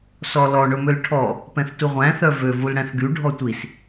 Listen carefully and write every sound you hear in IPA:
sɔlɔ ɳɵmølʈʰɔ | pɛ̃θtuʁʷæ̃ θœvø vulɽæ̃θɡy ɖʱɔtʷis

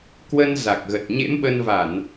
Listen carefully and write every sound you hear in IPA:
kwə˧nza˨˩k̚ɣə˨˩t̚ ɲḛ˧˥mɓə˧n va˧˩˨n

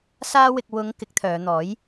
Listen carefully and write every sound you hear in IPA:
saː˧wɪ˨k̚ wʊ˨˧ŋ kɪ˨˥k̚t̪ʰœː˨˧n̪ɔː˨˥j

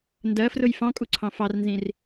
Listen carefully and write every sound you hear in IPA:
ndɜfrʊj fɑ̃kʼuǀʰɑ̃ fɑrnzĩr

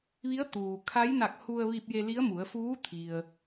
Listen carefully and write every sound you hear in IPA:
ʋi˧˥ə̯t̪uː˩kʰa˧˥j na˧˩k̚ hu˧ə̯ʋi˧p̚ je˧li˧˥ə̯mu˩˧ə̯ fuː˧˥t̪ʰi˩ə̯

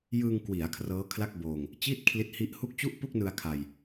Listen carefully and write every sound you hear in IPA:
jɯː˧ŋkwi˩˦a̯ kʰrɤː˦˥kʰla˥˩k̚ boː˧ŋ | t͡ɕi˥˩t̚kʰli˦˥t̚hi˦˥ʔhu˥˩k̚ t͡ɕu˥˩ʔpu˥˩k̚nɯ˧a̯ kʰa˧j

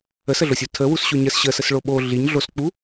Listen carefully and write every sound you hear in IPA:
əsəɮosʲu tʰəwusɕo ɲəs ɕəsəsɭo ɓo ɮiɲ ɮosk͡pu

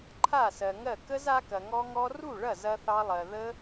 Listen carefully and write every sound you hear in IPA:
ǃʰa˥˩sɜ˨ŋɜ˥˩ kə˦˥z a˦˥kɐ˨ŋɔ˦˥ŋɔ˦˥ ru˥˩ɭɐ˥˩ zɐ˦˥θɑ˦˥lˠɜ˨ ðə˦˥

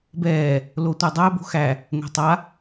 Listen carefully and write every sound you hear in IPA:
bɛː | lotʷædˤæ bo̤xæ | ŋʷɛ̤tˤa

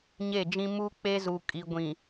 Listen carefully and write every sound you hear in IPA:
ɲe˦˨d͡ʒĩ˦ mu˦k͡pe˦zu˨ kʼi˨ ɡʷĩ˨

